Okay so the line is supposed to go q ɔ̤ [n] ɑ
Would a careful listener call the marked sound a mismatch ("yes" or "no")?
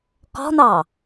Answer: no